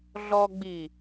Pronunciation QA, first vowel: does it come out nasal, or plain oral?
oral